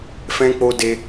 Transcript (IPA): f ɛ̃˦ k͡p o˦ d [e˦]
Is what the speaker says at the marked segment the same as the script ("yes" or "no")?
yes